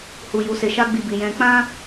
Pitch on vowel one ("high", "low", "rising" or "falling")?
low